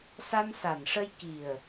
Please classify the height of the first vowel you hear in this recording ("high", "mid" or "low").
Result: low